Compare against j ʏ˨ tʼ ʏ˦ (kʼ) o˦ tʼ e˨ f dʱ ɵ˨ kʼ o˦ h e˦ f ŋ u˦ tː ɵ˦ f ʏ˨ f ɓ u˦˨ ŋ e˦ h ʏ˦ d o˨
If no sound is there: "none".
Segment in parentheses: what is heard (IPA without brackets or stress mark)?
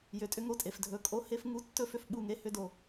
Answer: ŋ